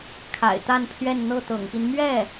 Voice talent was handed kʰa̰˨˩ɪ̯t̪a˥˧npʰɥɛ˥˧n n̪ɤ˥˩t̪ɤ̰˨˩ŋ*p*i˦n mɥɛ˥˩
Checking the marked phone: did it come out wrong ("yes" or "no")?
no